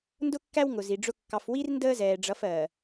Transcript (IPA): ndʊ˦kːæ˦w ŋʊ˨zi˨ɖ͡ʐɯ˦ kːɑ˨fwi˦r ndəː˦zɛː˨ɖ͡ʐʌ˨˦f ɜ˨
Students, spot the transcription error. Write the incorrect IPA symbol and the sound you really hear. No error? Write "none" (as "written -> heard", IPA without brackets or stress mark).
ɯ˦ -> ʊ˦